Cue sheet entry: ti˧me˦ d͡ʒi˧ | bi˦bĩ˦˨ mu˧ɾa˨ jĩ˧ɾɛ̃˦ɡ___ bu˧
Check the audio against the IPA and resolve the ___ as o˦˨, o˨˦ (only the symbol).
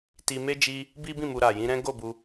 o˦˨